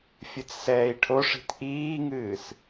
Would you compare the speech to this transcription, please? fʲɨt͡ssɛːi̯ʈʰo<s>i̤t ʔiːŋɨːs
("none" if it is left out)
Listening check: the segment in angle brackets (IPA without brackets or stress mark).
ʂ